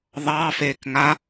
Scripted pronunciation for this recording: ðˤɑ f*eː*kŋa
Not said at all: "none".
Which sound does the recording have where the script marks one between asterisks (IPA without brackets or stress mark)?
eː